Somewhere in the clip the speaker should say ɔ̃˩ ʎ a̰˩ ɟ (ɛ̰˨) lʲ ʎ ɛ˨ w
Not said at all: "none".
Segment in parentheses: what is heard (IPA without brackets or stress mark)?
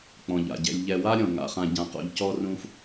ɛ̰˨